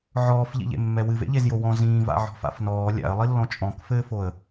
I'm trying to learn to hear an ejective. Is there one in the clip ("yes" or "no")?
yes